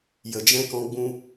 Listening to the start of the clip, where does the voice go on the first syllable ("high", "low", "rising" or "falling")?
low